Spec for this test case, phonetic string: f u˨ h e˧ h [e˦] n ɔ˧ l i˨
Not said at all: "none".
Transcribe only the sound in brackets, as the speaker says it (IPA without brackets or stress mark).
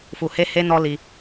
e˦